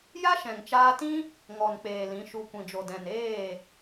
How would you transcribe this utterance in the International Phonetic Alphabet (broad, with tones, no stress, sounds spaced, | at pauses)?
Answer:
j a˦ ʃ ɛ̃˨ ŋ t͡ʃ aː˧ t ĩ˦ | ŋ ɔ˨ n k͡p eː˨ l ĩ˨˦ ʃ u˧ kʷ ĩ˨ d͡ʒ o˨ d ɛ̃˨ n eː˦˨